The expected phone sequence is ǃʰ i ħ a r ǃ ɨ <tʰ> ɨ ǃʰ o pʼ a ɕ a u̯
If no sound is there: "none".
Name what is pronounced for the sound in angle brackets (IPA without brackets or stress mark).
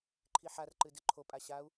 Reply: d